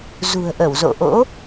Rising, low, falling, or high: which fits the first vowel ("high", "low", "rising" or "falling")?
low